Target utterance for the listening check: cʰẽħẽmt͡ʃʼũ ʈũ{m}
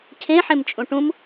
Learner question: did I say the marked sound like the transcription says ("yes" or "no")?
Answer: yes